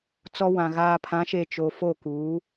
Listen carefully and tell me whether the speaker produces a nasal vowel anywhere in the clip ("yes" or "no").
yes